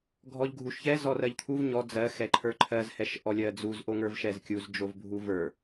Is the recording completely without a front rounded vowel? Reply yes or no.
yes